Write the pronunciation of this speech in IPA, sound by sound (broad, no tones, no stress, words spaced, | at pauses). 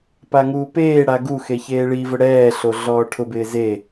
paŋuːpeːɽa ɡuxe çeːɭivʊ ɽɛːɬo ɮɔːʈʰʊbɪː ze